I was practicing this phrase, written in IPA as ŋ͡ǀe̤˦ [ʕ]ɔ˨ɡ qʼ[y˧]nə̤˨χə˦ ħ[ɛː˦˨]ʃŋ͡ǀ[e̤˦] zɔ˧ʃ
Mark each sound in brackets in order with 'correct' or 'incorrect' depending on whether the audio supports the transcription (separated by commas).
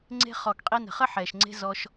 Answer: incorrect, incorrect, incorrect, correct